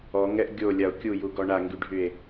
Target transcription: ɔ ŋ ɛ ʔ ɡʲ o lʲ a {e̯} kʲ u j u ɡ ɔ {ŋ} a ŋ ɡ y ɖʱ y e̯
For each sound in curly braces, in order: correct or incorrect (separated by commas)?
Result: incorrect, incorrect